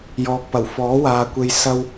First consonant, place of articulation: palatal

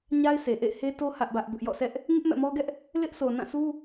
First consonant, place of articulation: palatal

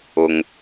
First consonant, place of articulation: velar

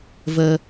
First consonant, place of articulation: labial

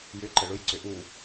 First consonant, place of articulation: palatal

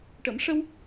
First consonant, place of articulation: retroflex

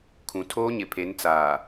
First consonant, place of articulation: velar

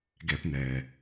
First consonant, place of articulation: velar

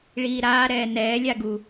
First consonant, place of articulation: retroflex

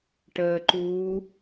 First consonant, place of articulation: retroflex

